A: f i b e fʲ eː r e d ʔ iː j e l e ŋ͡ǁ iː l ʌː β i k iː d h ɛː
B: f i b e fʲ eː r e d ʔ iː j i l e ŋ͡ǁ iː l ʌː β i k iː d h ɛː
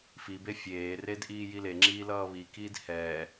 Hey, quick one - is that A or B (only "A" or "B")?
B